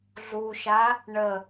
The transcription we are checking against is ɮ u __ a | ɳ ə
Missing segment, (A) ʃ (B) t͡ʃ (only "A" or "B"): A